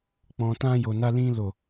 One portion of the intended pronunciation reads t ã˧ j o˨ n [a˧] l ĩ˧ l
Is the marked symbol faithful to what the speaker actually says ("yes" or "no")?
yes